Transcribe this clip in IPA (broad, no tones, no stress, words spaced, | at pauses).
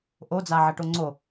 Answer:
ʔod͡zaʕɐʈo ŋ͡ǀo